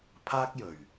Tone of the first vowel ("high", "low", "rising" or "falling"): high